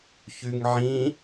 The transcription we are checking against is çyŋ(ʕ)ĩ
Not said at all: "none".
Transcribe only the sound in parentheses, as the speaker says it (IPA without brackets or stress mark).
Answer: ʕ